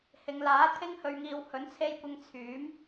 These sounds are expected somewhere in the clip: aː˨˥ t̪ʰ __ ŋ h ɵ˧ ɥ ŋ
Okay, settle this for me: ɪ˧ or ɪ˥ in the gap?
ɪ˥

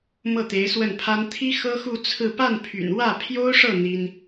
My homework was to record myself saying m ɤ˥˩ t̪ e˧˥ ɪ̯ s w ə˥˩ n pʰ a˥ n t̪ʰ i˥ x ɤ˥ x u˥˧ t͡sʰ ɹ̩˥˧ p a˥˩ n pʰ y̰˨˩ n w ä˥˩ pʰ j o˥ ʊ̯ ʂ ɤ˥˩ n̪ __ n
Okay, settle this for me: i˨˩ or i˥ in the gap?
i˥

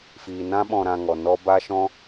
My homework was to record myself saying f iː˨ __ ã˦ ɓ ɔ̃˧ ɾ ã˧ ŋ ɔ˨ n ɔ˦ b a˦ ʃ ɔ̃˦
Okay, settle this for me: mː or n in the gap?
n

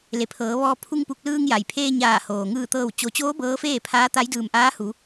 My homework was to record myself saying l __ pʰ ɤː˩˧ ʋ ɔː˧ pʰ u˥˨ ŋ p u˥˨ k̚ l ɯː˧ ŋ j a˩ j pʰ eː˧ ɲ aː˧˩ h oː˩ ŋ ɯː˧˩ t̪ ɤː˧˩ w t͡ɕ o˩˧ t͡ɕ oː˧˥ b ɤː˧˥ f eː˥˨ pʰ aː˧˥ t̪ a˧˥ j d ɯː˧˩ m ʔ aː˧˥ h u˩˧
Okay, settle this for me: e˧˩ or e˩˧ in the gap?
e˩˧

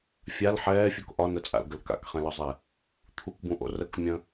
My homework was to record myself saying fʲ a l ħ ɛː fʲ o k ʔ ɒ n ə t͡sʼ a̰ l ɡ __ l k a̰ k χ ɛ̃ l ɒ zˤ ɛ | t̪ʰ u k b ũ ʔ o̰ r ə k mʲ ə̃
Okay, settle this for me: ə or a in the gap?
ə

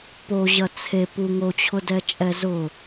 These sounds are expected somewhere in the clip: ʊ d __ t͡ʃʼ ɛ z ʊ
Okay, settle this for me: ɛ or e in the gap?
ɛ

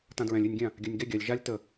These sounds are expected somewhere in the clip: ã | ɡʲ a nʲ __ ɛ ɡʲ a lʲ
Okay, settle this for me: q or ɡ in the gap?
ɡ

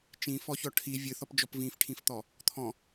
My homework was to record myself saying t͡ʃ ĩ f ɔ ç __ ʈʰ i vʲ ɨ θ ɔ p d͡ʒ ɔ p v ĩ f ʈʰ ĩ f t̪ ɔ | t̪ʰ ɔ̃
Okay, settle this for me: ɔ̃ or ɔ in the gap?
ɔ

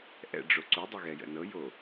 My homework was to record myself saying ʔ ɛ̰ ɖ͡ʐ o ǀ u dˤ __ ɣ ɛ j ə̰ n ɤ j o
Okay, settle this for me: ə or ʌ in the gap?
ə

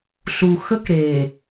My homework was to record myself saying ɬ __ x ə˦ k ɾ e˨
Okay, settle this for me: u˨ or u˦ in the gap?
u˨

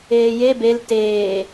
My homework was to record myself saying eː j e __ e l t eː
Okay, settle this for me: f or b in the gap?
b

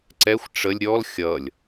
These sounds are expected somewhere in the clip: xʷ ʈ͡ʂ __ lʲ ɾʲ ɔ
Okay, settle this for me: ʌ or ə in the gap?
ə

